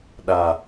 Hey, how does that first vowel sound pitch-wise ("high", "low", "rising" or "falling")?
low